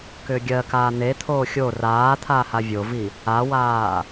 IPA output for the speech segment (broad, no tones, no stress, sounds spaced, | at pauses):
k ʏː ɡʲ ɜ k aː n̪ e t̪ʰ oː xʲ o r aː t̪ʰ aː h a vʲ o v i | a w aː